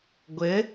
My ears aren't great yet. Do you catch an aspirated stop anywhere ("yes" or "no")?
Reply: no